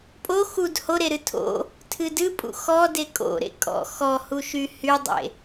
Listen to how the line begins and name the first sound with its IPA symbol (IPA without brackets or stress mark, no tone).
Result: pʼ